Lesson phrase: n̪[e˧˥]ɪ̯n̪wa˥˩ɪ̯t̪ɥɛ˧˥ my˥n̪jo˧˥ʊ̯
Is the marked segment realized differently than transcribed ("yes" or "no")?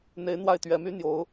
no